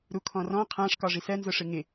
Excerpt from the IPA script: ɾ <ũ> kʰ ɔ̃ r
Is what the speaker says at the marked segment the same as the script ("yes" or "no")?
no